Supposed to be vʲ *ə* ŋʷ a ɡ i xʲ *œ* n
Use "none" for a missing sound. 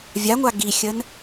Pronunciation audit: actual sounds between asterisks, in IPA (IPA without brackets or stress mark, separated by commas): a, ə